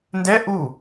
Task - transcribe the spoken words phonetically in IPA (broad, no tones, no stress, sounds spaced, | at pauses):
n d ɛ ʔ u